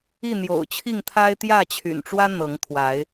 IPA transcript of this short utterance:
i˥˨n̪jo̰˨˩ʊ̯t͡ɕʰi˥˨ŋt̪ʰa˦ɪ̯ t̪jä˥˨t͡ɕʰy̰˨˩nʈ͡ʂwä˦ n̪ɤ˨˦ŋt̪ʰwa˨˦ɪ̯

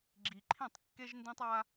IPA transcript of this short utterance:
ɡ͡ǁi˨ǃʰĩ˦˨tˤkːe˦ʒndĩ˦tˤ a˦

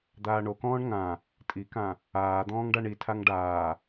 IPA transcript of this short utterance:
d̪aːɳokɔ̃ːɳ ŋã | tʼikã | aːd̪ɔ̃ːŋ ɖaɳitʰaŋ ɖaː

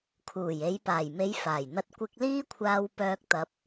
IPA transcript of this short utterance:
kʰuː˨˩je˨˧j paː˨˩jme˨˧j faː˨˩jn̪ɐ˧t̚ kʷɪ˧k̚liː˥kʷʰaː˧w pœː˧k̚t̪ɐ˨p̚

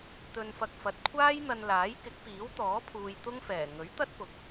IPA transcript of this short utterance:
t̪ɵ˧nfɐ˧k̚fɐ˨˥t̚ kʷʰaː˥jn̪ɐ˧n laː˨˥jkɪ˨˥k̚piː˨˥wt̪ɔː˨˥ pʰuː˧jt̪ʊ˥ŋ fɛː˨˩ ŋɵ˨˥ɥt̪ɐ˥t̚pʊ˨k̚

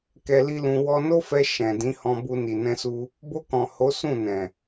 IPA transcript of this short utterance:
kɛ˧li˦lũ˧ wɔ˧no˦fɛ˧ ʃɛ̃˨ dĩ˨˦hɔ̃˧bu˧ ni˨nɛ̃˧su˧ | bo˧kɔ̃˨ ho˨˦ sũ˦˨nɛ̃˨

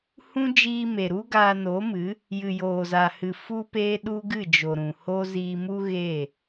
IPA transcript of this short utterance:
hũ˦ d͡ʒiː˧me˨ɾu˦ ɡaː˧no˨˦mɨ˨˦ | jɨ˨joː˨za˨hɨ˨ fu˦peː˦ɗu˦ ɡɨ˦˨d͡ʒo˨ɾũ˨ho˦ ziː˧mu˦ ɣeː˦˨

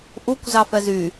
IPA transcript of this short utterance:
ʔukʷ zɑfɛzy

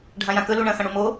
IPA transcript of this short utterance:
ɖʱãjãkɵlu ɳɐ̃xɐ̃ɽumo

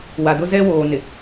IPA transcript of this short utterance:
wa˨dʊ˦zɛ˦woː˨ nɪ˨

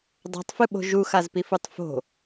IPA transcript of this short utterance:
dˤa̤tˤfɨɓo̤ ʒuxazpifutˤ fo̤

